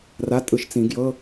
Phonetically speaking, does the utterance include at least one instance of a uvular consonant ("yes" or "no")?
no